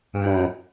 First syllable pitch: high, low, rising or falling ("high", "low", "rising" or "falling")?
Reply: low